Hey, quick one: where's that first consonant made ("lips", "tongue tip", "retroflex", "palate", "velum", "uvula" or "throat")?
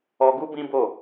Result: velum